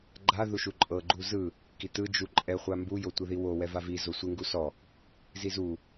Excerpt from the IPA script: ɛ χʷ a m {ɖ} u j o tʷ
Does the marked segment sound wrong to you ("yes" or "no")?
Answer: yes